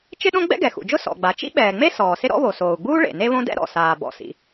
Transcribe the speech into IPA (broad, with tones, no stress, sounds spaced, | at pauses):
t͡ʃ ɪ˥ ɗ õ˥ ɡ͡b ɛ̰˥ ɡ ɛ˩ x ṵ˩ d͡ʒ ʊ˥ s ɔ̰˩ ɡ͡b a˩ t͡ʃ ḭ˥ ɓ ɛː˩ ŋ͡m e˥ s ɔː˩ s ɪ˥ ɾ ɔ̰˥ β o˩ s oː˩ u̯ ɡ͡b uː˥ ɭ ḛ˩ n e˥ β õ˥ d ɛ̰˥ ɾ ɔ̰˩ s aː˩ b ɔ̰˩ s ḭ˩